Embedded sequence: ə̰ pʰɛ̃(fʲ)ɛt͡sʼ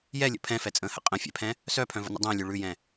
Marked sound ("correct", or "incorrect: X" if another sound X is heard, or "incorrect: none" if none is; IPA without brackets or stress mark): incorrect: f